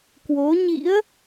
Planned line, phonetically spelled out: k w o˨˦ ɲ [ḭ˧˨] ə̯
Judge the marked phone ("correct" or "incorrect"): incorrect